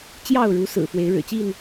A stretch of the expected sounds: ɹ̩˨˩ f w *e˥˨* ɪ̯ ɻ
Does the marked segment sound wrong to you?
yes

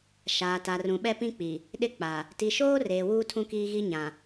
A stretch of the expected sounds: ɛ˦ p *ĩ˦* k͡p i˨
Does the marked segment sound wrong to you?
no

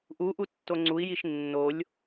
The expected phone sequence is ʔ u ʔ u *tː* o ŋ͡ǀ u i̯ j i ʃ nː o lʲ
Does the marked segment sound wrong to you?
no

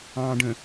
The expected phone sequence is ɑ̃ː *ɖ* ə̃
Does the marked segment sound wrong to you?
no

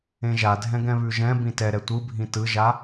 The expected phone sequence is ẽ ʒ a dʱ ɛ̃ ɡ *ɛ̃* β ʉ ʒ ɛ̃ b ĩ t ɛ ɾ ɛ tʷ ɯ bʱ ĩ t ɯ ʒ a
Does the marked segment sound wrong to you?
no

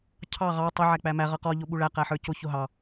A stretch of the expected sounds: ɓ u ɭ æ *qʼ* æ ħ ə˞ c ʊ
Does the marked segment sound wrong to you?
yes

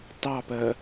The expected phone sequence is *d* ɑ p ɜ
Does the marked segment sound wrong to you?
yes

